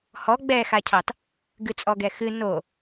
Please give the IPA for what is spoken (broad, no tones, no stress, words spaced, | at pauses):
hɔ ɡ͡bɛxacʰɑt | ɡɨt͡sʼɔɡɛxɨ no